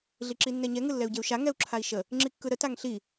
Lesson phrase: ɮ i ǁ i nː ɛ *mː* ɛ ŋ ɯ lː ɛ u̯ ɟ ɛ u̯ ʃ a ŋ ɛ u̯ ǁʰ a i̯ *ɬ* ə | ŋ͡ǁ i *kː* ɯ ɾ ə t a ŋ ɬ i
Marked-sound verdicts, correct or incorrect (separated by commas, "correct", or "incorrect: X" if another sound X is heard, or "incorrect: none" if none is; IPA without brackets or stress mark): incorrect: ɲ, incorrect: ʃ, correct